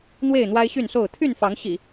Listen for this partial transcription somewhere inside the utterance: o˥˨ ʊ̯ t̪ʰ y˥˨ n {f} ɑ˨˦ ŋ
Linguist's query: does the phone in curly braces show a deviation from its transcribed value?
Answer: no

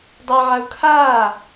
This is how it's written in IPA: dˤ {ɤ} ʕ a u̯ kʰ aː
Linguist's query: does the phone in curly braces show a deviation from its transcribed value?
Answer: no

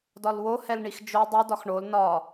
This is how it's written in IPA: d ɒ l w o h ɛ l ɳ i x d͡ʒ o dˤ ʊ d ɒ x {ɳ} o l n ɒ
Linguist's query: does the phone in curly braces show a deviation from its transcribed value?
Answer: no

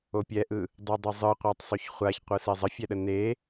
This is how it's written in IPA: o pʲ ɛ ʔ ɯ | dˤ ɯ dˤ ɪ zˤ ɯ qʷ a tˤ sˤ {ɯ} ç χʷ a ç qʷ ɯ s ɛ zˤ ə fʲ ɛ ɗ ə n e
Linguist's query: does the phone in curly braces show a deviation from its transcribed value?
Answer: yes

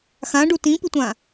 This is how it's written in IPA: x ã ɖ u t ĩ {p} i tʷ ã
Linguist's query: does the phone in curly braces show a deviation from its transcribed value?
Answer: no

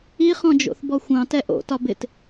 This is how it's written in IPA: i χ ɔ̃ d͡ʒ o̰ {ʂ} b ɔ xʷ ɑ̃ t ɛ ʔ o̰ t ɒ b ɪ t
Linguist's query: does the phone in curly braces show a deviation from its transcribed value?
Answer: yes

